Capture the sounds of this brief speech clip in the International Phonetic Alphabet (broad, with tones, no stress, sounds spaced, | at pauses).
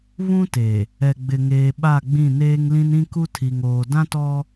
β ũ˦ t e˨ | ɛ˨ ɡ͡b ɪ˨ ŋ eː˨ ɓ a˦˨ ɡ͡b ĩ˦˨ n eː˦ ŋ l ĩ˦ n ĩ˦ k u˦ tʰ i˨ ŋ oː˨ d ã˦ t ɔ˦